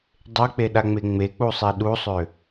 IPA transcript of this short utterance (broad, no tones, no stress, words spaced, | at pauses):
dˤek͡peɗaŋ͡me ŋ͡mek͡pusˤe ɗusˤø